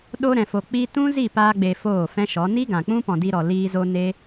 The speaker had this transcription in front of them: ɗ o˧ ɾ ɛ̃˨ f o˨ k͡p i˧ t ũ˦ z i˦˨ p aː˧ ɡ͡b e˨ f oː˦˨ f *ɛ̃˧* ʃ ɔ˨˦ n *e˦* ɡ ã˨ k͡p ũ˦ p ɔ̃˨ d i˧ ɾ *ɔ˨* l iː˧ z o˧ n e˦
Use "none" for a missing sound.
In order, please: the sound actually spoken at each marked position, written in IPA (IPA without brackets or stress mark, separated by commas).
ɛ̃˦, i˦, ɔ˨